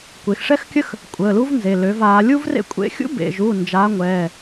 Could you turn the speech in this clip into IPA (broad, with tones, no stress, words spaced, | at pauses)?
kʷe˩˧xʂɛ˥xkʲə˥x | kʷʼəː˩˧˩lu˥vnze˩˧˩ lø˩˧vaː˩˧ lʲu˥vrḛ˥ kʷʼḛ˥ xʲṵ˥bḛ˩˧˩ʒu˩˧˩ nd͡ʒaː˨˥ŋʷɛː˩˧˩